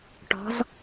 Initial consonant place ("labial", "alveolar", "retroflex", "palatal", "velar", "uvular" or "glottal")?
retroflex